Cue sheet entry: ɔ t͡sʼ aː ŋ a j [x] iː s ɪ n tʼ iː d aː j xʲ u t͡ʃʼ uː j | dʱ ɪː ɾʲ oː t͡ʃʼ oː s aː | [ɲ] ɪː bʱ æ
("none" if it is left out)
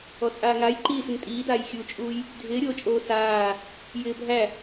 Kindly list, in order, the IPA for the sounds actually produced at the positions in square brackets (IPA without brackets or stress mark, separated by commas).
ǃ, j